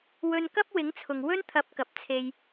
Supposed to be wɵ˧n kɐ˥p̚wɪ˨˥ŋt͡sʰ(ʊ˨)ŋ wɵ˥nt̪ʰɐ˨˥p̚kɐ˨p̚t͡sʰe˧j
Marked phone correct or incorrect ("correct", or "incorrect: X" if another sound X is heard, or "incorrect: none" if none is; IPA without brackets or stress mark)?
correct